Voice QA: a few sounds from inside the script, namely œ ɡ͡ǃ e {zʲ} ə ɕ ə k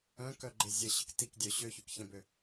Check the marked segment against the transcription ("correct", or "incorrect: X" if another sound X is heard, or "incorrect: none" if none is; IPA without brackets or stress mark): correct